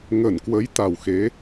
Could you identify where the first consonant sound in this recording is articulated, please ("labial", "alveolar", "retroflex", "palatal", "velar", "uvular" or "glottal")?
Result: velar